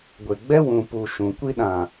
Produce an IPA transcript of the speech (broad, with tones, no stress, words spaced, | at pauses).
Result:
ɡʷe˨ɡ͡bɛ˦ wũ˨pu˨ ʃũ˨kʷi˦ ɗã˨